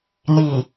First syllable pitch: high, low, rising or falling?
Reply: low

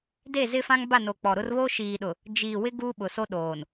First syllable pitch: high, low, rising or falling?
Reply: falling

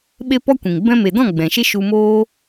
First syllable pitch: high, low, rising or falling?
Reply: high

